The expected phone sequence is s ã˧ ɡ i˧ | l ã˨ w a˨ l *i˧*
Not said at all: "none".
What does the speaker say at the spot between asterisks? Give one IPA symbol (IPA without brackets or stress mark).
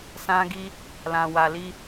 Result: i˧